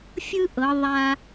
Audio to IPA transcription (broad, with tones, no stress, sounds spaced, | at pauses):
fʲ ɯ˥ ʔ ɤ˩˧ ðˤ a˧